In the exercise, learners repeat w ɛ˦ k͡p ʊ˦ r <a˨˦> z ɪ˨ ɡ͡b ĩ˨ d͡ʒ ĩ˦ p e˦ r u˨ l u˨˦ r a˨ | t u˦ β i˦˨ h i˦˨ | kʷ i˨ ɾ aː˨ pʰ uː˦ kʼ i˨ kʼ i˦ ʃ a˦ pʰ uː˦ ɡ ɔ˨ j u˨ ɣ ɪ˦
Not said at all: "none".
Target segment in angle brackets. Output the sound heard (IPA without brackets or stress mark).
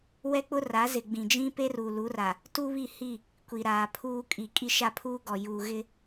a˨˦